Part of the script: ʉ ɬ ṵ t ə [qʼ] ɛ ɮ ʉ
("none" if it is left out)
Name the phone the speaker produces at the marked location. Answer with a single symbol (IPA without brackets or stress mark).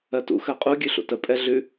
pʼ